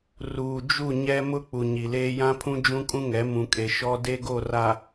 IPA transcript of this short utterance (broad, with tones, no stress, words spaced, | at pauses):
ruː˨d͡ʒu˦˨ ɲɛ˦ mʊ˦ k͡pu˨ɲi˨leː˦ jã˦pʰũ˦ d͡ʒũ˦kʼũ˦ŋɛ˨˦ mũ˨kʼe˨ ʃɔ˦de˦ɡo˦˨ ra˨